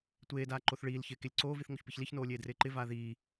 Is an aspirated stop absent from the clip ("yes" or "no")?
yes